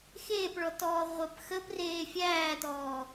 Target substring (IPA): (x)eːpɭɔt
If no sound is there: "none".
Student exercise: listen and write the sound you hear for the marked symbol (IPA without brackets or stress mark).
x